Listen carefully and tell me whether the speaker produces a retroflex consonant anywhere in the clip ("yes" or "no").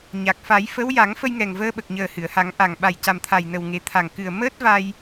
no